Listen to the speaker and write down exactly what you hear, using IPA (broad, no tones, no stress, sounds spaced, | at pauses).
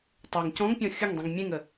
tˤ ʉ ŋ c ɔ̃ ŋ pʲ ɔ̃ xʲ ʊ ŋ dˤ ĩ ŋ mʲ ẽ ŋ ə